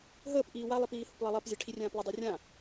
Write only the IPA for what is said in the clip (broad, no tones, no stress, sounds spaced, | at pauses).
ɦ əː p ʔ iː w a lˠ i p iː h ʊ p lˠ ɜ lˠ ɜ p zʲ ɜ ʈʰ i rʲ ãː p lˠ ə dˤ i rʲ ã